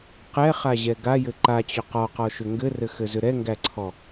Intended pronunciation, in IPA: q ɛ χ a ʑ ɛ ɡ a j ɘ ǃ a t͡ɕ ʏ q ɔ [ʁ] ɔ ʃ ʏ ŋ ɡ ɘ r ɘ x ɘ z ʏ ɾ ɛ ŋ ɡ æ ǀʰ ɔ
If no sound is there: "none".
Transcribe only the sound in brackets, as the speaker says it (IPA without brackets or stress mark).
q